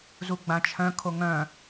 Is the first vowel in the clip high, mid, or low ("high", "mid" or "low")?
high